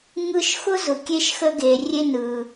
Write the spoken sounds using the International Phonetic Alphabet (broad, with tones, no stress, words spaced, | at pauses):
ŋɯ˧ʃxʊ˦zʊ˨ kʲe˧ʃxə˧ɡe˨ rʲe˦nɯ˨